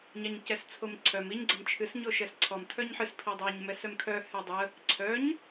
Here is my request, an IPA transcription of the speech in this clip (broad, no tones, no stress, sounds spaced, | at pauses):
ɲ a ɲ c ɛ s t͡sʰ o m ǀʰ œ m i ɲ ɡ͡ǀ ə m t͡ʃʰ ɨ s ɲ o ʃ ɛ s ǀʰ ɔ m tʰ œ ɲ ħ ɨ s pʰ i dˤ a ɲ m ɛ s œ m kʰ œ h ɛ dˤ ə | ǀʰ œ ɲ